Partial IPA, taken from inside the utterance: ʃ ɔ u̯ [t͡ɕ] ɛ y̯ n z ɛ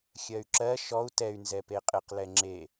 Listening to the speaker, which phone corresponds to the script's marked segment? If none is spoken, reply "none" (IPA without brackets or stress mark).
t